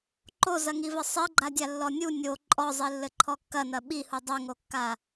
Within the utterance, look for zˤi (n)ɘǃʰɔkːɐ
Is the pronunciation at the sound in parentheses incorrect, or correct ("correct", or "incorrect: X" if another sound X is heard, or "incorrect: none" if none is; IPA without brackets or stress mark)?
incorrect: lː